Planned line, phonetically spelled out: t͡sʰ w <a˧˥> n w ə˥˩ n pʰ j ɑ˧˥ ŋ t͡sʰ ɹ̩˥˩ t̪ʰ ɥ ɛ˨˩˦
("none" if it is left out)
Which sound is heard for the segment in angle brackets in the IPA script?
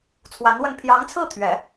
a˧˥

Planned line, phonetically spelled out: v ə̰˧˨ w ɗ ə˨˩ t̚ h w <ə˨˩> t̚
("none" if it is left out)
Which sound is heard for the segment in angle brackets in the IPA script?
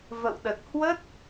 ə˦˥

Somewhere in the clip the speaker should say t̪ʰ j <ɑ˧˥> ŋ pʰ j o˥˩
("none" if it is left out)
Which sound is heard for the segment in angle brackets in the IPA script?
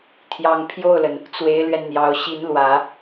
ɑ˧˥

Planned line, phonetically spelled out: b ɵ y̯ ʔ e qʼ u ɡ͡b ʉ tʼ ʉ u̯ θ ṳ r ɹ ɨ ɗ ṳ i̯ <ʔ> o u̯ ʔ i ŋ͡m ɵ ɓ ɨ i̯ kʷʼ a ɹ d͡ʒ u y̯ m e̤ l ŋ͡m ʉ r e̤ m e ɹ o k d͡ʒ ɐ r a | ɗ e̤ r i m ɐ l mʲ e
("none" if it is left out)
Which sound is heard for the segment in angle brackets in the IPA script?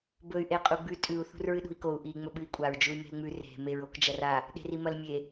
k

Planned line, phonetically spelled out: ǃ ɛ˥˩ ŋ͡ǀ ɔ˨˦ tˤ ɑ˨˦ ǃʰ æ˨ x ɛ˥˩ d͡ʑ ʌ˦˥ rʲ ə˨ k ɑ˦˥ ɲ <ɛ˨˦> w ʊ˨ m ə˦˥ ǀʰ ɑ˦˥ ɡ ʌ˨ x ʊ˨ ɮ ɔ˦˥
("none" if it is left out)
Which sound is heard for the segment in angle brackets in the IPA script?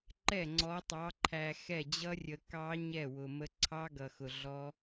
ɛ˥˩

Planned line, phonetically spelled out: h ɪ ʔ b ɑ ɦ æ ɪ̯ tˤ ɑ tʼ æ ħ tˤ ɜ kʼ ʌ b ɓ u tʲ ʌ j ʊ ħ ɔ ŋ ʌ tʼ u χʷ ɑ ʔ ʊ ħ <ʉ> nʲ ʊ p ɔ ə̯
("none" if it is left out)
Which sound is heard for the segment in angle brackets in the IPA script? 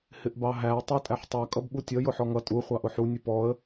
u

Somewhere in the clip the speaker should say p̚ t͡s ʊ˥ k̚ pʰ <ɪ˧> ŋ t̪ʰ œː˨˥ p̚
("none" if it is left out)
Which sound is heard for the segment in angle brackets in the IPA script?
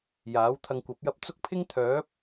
ɪ˥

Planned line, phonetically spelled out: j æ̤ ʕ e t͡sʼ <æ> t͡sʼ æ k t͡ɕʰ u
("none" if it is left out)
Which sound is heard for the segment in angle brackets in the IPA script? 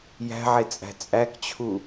æ̤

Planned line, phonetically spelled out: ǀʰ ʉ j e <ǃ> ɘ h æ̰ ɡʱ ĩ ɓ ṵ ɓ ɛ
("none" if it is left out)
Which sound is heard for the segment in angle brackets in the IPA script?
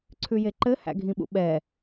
ǃ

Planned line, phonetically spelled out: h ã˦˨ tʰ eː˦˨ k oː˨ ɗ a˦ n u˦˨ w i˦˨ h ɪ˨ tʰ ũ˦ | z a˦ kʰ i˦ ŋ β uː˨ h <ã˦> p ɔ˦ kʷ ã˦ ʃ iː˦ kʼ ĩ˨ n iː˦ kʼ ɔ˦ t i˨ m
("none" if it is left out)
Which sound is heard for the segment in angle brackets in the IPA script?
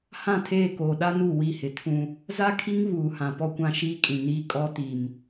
ã˨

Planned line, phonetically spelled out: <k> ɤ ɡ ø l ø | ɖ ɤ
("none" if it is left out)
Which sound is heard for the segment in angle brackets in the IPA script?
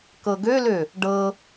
k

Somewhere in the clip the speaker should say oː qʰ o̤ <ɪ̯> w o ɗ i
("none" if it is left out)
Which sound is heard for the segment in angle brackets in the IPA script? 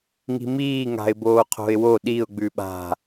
ɪ̯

